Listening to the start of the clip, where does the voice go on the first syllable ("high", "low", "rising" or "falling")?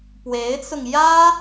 rising